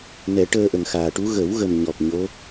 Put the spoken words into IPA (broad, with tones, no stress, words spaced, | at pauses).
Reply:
nɛ˨˩˦ ʈəː˧ʔə˨˩ŋxaː˨˩ʈu˧˥ ɣə˨˩˦wɣə˨˩m ɲɔ˨˩k̚ɲo˧˥